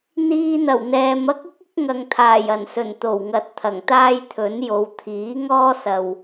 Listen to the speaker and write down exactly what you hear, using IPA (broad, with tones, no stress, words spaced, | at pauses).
n̪iː˧n̪ɐ˨˩wn̪ɛː˨m ɐ˥k̚ɪ˥k̚ɪ˨˥k̚ ŋɐ˨ŋt̪ʰaː˨˩jɐ˨˩nsɵ˨˩n t̪o˨˩wŋɐ˨t̚ t̪ʰɐ˨˩ŋt̪aː˥jt̪ʰɵ˨˥njo˨˧w t̪ʰiː˨˥ŋɔː˥sɐ˨w